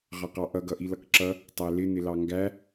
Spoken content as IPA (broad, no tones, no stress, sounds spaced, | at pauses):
ʁ ɑ q ɑ ʔ ʌ ɡ ʌ ʔ i l ʌ k ǁ ʌ | tˤ æ l ɪ n ɪ l ɑ ŋ ɡ æ